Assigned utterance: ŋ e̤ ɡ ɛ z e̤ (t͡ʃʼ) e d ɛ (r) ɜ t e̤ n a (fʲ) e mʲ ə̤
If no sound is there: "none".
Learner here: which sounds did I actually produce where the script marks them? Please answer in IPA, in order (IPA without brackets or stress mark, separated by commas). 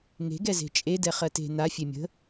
t͡ʃʼ, χ, fʲ